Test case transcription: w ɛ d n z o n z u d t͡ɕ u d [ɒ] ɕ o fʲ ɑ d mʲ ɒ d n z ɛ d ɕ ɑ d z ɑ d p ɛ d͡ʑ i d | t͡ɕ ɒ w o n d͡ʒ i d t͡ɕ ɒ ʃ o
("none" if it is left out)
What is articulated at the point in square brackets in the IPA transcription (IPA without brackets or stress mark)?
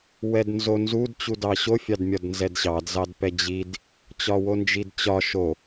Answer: ɑ